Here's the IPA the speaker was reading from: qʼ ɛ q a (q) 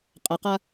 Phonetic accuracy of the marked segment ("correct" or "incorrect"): incorrect